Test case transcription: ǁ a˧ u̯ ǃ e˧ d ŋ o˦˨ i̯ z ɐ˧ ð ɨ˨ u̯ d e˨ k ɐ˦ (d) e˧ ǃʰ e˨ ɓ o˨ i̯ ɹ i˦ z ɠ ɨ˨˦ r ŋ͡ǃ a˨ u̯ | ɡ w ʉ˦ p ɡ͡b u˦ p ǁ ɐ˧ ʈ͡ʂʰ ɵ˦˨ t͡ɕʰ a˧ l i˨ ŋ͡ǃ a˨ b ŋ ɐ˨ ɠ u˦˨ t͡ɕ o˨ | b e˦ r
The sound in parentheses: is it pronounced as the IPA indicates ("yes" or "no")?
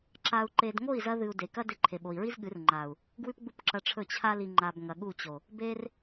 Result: yes